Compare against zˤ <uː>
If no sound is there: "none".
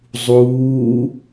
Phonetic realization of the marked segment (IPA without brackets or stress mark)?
uː